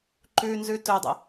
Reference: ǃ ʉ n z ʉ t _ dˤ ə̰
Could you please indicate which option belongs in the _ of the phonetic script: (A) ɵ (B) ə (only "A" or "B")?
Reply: A